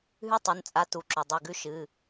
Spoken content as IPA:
ɦ ʉ˦˥ tˤ u˩˧˩ n t͡sʼ a˨˥ t u˩˧˩ ǁ o˩ dˤ i˩˧˩ ɡ ʉ˦˥ ʃ ɨ˩˧˩

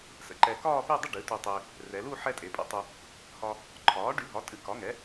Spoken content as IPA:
s ə̰˩˧ ǃ ɛ˧ k ɒː˥˧ p e˥˧ dˤ ə˥˧ ɖ ɨ˩˥ t u˧ tˤ e˧ | r ɛ˩˧ l u˥˧ ħ ɛ˧ tʼ e˩˧ pʼ ə̰˧ tˤ u˧ | h ɒ˧ | ǃʰ ɒː˩˥ ɖ y˩˥ ɦ ɒ˩˥ tʼ ɨ˩˥ k ɒ˩˥ ŋ ɛ˩˥

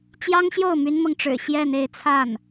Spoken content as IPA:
t͡ɕ j ɑ˥ ŋ ɕ j o˥˩ ʊ̯ m y˥ n m ɤ˨ ŋ ʈ͡ʂ ɻ̩˨˩ ɕ j ɛ˥˧ n e˥˧ ɪ̯ t͡sʰ a˥˩ n

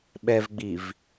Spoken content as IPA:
ɓ ɛ v ɡ͡b i v

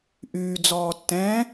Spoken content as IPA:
ʔ yː d͡z ɔː tː ɛ̃

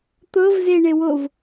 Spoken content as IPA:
t̪ ɤ v z e ɳ e w o v

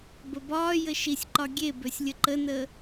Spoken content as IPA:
b ə b ɒː j ə ʃ i sʲ ǃ ɒ ɡʲ e b ø sʲ lʲ ə ǃ ə n əː

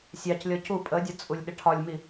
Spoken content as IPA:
sʲ ɑ c lʲ ɔ c u pʼ ə dʲ ɒ t͡sʼ u lʲ ɗ ɪ ʈʰ ɒ lʲ m i

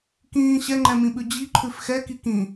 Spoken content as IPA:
k ĩː ɕ ɛ ŋ͡ǃ ɛ̃ m ĩ ɓ ʉ d͡ʑ i ǃʰ ʉ f x ɛ k i k ĩ

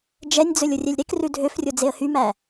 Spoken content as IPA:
d͡ʒ ɛ nʲ d͡z ɵ lʲ o rʲ ɛ lʲ ɾ e k r ʉ dʱ ø f rʲ o d͡z e ə̯ h y m æ

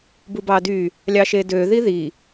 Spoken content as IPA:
b u b ɑ d y | lʲ ɑ ʃ e d ø ð i ð i

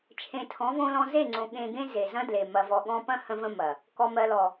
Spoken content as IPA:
t͡ʃʰ ẽ˨ tʰ ɔ̃˨˦ v õ˧ l ɔ̃˧ z e˦˨ ŋ͡ǀ õ˨ ɠ ẽ˨ ɡ ẽ˧ z e˨ z ɐ̃˦ d l e˨ m ɐ˨ v ɔ˨ ɠ ɔ̃˧ p ɐ̃˦ h ə̃˧ v ə̃˧ m ɐ˨ | k ɔ˨ m ɜ˨ l ɔ˨

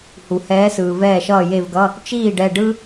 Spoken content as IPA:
h u˩ h ɛː˨˦ s ɯː˩ v ɛː˧˩ ʃ ʌː˧˩ j e˧˩ v ɡ ʌ˩˧˩ | t͡ʃ iː˥˩ ɖ ɛ˧˩ ɖ ɯ˦

